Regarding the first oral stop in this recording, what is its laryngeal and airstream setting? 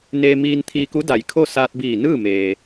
aspirated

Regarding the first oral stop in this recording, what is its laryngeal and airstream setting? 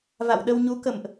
implosive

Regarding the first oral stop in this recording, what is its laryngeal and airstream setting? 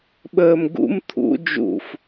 implosive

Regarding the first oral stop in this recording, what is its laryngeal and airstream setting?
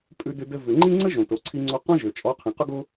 ejective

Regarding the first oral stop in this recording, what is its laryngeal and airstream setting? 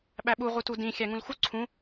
implosive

